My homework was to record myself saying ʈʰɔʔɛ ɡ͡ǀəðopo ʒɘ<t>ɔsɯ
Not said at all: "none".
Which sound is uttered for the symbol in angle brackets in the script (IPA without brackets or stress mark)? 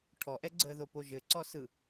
ǀ